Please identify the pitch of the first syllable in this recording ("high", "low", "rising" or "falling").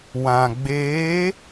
low